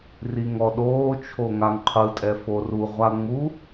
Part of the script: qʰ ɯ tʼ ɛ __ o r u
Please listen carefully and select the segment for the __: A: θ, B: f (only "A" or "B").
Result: B